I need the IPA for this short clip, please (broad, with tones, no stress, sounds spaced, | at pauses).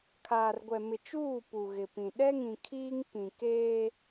kʰ aː˨ r ɡʷ ɛ˨ m ɪ˨ t͡ʃ uː˦˨ p u˨ ɣ ɪ˨ p ĩ˨ ɗ ɛ˦ ŋ ĩ˨ kʰ iː˦ ŋ k ĩ˨ k eː˦